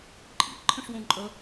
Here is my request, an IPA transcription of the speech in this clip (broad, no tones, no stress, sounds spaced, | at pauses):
ǃʼ ḭ ǃʰ ə̃ ʂ w õ ǃʼ ə